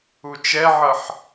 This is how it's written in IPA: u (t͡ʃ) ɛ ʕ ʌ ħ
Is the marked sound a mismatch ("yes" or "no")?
no